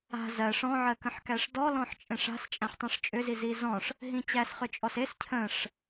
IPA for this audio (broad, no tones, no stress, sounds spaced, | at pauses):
a̤ z ɜ ʂ ɔ̃ ʕ ɜ k ə̃ ħ k æ ʂ d ɔ l ɔ̃ ħ t͡ʃʼ ẽ ʂ a̤ s t͡ʃʼ æ̃ ħ tˤ ẽ ʂ t͡ʃʼ ʏ z i z i z ɔ̃ ʂ | ɦ ĩ t͡ɕ æ s χ ʏ t͡ʃʼ ɔ s e s cʰ ə̃ ʂ